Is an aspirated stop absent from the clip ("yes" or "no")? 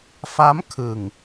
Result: no